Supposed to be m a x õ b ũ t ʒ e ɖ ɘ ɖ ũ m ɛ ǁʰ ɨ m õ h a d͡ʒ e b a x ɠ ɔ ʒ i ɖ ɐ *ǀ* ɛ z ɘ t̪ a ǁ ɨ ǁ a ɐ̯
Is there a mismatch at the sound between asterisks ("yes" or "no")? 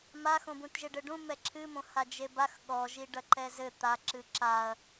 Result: yes